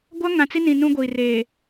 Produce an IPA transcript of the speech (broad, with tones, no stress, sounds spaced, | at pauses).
ɡʷ a˦ ŋ ã˨ t͡s i˦ n ĩ˨ n ũ˦ ɡʷ iː˨ r eː˨